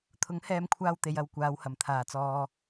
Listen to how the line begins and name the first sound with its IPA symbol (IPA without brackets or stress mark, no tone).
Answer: t̪ʰ